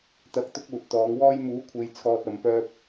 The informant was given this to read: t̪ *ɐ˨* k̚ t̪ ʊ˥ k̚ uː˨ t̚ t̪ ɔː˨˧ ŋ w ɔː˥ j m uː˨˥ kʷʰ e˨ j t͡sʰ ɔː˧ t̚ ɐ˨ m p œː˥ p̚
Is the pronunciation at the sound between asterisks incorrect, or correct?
incorrect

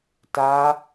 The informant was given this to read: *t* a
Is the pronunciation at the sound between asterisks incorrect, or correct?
correct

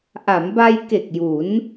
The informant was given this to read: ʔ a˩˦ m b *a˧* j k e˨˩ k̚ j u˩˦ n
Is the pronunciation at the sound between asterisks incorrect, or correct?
correct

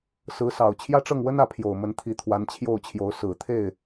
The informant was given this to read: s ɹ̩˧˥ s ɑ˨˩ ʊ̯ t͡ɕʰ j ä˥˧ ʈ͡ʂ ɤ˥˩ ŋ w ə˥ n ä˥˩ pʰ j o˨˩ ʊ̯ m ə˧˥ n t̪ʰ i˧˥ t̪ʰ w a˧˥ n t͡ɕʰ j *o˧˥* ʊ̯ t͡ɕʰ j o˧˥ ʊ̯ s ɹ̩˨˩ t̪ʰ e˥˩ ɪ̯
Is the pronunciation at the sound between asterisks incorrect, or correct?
incorrect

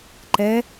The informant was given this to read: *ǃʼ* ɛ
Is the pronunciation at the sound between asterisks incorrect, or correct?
incorrect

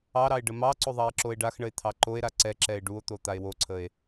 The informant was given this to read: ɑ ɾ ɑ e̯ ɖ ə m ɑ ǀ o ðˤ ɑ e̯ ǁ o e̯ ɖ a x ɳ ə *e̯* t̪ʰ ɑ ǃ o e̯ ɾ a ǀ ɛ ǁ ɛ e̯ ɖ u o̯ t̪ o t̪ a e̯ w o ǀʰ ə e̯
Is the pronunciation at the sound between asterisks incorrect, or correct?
correct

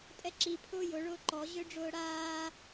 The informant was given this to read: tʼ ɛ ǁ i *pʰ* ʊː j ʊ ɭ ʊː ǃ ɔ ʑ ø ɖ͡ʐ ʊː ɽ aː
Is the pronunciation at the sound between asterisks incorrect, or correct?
correct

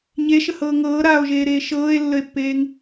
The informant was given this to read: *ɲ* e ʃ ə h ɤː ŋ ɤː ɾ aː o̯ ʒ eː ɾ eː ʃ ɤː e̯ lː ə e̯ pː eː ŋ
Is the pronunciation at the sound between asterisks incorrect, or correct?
correct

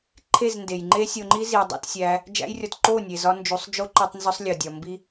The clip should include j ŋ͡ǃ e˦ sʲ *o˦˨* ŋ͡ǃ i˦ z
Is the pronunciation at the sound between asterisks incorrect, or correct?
incorrect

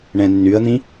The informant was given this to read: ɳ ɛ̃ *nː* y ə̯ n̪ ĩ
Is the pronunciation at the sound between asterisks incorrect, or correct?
correct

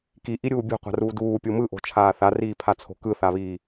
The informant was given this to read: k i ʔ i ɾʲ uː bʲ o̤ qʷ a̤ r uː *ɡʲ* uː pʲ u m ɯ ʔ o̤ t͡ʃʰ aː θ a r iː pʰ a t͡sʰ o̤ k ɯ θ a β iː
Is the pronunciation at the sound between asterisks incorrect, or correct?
incorrect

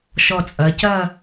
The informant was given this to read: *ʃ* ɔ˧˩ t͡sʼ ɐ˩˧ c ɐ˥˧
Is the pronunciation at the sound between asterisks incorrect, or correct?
correct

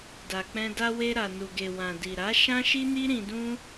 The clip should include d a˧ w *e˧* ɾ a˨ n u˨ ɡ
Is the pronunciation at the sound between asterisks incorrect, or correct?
correct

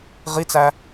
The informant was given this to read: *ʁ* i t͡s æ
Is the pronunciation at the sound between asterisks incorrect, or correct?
correct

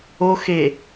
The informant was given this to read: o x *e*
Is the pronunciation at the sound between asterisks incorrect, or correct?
correct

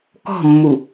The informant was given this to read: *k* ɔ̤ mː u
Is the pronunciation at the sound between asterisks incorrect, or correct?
correct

